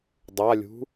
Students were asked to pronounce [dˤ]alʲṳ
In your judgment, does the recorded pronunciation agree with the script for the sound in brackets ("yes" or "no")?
yes